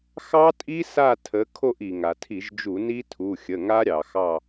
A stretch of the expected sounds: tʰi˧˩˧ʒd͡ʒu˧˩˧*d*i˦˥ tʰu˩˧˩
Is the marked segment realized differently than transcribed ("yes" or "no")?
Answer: yes